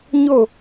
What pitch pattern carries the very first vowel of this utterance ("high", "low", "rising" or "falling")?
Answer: falling